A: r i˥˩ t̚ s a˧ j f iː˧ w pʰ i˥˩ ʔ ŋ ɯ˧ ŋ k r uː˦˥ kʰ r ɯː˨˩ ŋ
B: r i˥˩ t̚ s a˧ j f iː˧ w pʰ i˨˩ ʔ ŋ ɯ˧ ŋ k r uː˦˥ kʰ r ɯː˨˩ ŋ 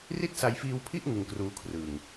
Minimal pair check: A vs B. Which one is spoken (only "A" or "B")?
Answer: A